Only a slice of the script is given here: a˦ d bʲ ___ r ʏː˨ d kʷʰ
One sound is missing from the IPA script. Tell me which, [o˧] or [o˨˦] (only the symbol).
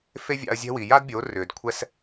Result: o˨˦